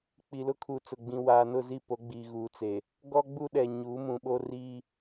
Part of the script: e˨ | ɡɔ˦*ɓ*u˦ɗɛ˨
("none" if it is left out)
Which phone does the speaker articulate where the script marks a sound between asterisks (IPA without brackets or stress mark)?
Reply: ɡ͡b